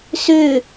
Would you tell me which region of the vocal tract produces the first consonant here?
tongue tip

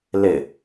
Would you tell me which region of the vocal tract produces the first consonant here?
tongue tip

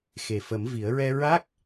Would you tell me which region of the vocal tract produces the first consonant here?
velum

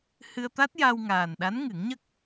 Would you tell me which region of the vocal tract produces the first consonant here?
throat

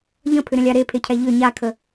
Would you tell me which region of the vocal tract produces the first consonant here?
palate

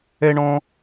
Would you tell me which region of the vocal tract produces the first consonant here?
retroflex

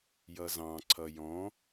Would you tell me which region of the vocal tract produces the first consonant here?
palate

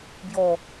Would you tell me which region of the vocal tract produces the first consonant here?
lips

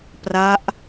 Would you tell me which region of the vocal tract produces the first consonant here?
lips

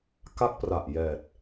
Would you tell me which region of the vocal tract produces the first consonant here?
velum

